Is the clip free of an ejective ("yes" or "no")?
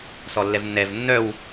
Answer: yes